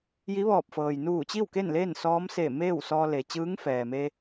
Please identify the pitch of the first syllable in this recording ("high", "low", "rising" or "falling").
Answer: rising